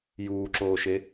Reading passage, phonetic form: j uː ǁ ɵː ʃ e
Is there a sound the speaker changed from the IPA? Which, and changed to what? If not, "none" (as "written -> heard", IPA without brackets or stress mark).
ɵː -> oː